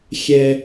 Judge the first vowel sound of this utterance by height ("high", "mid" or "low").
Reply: mid